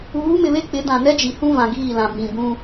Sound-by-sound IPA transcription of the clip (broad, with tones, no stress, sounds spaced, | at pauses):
uː˨˦ m ɪ˨ β e˦ k͡p ɪ˨˦ d ã˨ n ɛ˦ d͡ʒ i˨ h ũ˦ v ã˨ ɡ iː˦˨ l ã˨ b ĩ˨ b ũ˦